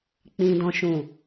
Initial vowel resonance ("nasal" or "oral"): nasal